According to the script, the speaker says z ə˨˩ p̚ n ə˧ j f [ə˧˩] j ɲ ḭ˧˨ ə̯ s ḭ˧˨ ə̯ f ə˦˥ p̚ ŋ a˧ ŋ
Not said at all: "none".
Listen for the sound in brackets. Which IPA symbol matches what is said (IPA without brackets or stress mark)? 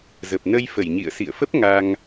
ə˧˩